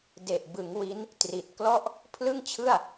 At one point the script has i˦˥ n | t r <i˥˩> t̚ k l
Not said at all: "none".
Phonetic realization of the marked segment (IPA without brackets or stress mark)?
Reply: i˨˩